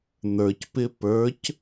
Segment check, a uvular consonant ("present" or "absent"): absent